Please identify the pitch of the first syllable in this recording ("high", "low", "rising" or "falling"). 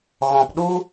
low